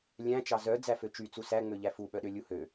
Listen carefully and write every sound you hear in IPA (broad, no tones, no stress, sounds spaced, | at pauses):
lʲ æ̃ t͡ʃ ɑ z œ d͡z æ f ø t͡ʃ y t͡s u s æ ŋ͡m ø ʎ æ f u ɓ œ ɗ ø lʲ u h ø